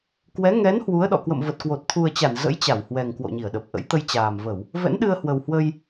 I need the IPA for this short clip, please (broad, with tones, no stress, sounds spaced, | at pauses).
k w ɛ˨˦ ŋ ɛ˨˦ n h w u˨˦ ə̯ ɗ ɔ̰˧˨ k w ə̰˧˨ m v ə˨˩ t̚ k w o˨˩ t̚ t̪ʰ u˨˩ ə̯ t͡ɕ a˧˩ n z ə̰˧˥ j t͡ɕ a˧˩ w h w ɛ˨˩ ŋ k w o̰˧˨ ɲ i˧˩ ə̯ ɗ ə˨˩ p̚ ʔ ə̰˧˥ j t̪ ə˧ j t͡ɕ aː˨˩ m v ə˧˩˨ w | v ɛ̰˧˥ n ɗ ɨ˧ ə̯ h w ə˨˩ w h w ə˧ j